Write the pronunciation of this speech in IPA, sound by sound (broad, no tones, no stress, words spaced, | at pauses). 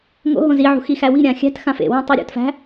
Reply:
ŋo̰ ɦõziʕṳ xixæwi̤ɾʲã xʲæ̤txã fḛwæ̃ tˤuɾʲo̰tfæ̤